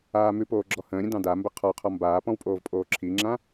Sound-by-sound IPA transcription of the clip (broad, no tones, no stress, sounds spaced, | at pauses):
aː m ʉ p oː ɡ͡ǁ ɔ h ə̃ː ɾʲ ə̃ d ɑ̃ d a m b ə qʰ ɔ qʰ ɔ m b aː p ɔ̃ w pʼ oː v pʼ oː ǁʰ i ŋ͡ǁ ã